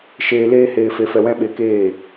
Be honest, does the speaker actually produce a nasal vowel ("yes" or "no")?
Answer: yes